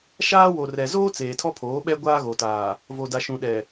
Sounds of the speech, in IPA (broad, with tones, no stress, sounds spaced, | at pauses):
ʃ aː˦ w o˨ r ɛ˨ z oː˦ t͡s eː˨ tʰ ɔ˦ pʰ oː˨˦ ɓ ɛ˦ ɡʷ aː˦ ɣ o˨ t aː˨ | v o˨ d a˨ ʃ ũ˨ ɗ ɛ˨